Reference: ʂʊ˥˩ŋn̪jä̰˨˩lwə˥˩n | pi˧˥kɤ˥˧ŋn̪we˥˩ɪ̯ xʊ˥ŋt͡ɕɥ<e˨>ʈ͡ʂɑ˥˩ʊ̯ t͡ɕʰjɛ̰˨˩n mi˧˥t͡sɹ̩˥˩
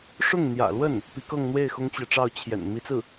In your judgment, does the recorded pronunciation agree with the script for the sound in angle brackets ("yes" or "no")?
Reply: no